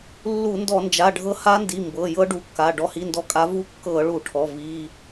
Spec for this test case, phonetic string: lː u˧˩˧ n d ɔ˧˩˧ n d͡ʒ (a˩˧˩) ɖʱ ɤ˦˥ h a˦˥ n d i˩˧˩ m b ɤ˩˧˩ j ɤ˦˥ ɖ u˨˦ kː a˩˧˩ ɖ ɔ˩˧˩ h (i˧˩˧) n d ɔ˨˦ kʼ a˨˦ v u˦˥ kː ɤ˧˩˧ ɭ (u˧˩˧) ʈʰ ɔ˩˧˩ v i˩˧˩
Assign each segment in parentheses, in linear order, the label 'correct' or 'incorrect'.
correct, incorrect, correct

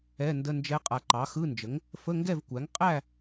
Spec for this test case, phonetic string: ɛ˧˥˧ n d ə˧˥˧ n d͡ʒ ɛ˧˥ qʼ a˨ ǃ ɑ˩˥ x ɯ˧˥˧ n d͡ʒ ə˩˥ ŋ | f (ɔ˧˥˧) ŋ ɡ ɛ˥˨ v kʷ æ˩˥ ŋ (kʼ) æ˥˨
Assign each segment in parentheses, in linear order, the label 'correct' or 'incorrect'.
incorrect, incorrect

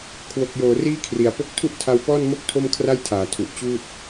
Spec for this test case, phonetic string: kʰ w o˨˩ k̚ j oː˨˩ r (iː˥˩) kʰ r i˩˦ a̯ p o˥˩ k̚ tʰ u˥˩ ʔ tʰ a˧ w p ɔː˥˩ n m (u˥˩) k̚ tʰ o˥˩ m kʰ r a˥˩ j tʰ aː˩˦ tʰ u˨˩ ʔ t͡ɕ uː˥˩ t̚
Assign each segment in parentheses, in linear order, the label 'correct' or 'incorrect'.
correct, incorrect

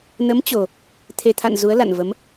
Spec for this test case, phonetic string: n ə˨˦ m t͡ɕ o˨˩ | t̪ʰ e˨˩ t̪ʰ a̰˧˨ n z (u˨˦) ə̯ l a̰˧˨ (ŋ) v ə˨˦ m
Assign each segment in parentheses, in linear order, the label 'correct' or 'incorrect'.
correct, incorrect

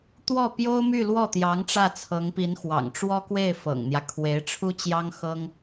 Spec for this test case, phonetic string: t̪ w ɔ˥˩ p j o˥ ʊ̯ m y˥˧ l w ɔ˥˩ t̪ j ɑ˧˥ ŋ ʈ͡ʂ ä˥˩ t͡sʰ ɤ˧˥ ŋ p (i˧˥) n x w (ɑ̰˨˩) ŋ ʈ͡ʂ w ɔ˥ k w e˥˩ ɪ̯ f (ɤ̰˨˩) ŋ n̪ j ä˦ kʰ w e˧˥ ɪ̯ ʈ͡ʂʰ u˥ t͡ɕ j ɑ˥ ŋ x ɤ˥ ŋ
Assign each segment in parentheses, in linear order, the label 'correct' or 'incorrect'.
correct, correct, correct

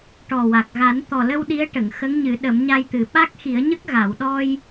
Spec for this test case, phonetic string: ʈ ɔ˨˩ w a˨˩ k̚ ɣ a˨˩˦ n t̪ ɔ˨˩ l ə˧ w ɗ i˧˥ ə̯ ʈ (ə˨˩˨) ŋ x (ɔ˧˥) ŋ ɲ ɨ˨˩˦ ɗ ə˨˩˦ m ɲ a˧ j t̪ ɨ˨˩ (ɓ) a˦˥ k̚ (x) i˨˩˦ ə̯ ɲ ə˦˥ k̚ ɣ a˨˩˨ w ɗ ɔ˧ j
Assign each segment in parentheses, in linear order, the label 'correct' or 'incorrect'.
correct, incorrect, correct, correct

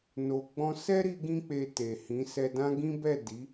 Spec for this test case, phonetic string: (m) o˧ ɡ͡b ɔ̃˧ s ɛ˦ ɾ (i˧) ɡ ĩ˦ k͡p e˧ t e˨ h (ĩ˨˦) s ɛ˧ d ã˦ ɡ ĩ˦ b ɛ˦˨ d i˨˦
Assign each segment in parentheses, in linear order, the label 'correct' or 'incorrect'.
incorrect, correct, correct

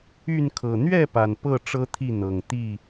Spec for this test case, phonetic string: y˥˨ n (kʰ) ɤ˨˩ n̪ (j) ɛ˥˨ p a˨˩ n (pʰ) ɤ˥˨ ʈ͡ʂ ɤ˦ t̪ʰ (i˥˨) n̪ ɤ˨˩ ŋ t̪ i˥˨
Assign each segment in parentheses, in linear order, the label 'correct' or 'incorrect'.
correct, incorrect, incorrect, correct

